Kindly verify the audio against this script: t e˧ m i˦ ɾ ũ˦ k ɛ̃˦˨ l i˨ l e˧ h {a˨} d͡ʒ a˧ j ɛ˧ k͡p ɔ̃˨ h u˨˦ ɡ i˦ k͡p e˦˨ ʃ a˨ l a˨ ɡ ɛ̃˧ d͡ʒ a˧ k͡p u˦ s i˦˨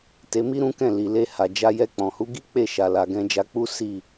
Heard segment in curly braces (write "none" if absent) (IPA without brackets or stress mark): a˨